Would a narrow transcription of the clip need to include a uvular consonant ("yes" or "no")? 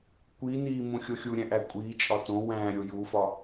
no